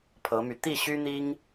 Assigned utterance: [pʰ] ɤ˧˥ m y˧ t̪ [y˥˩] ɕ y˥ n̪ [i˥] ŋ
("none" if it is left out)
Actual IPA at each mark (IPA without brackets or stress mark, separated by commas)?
pʰ, i˥˩, i˥